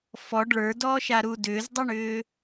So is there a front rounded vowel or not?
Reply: yes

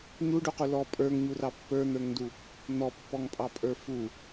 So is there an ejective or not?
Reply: yes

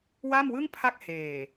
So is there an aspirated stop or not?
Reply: yes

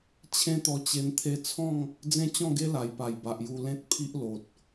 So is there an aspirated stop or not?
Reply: yes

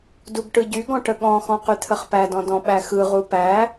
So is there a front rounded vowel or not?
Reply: yes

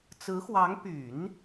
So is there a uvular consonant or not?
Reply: no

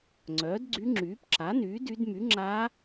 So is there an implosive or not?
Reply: no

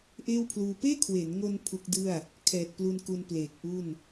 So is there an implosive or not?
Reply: no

